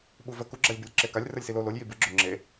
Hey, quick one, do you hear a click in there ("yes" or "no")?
yes